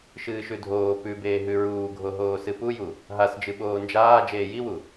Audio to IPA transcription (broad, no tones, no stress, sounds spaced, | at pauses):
ʃ ɨː ʃ ʉ dʱ oː p ʉ b eː ɦ ʉ ɹ uː ɡʱ o ɦ oː s ɨ p u j u | ɦ a s d͡ʒ ɨ ɓ oː n d͡ʒ aː d͡ʒ eː j i w u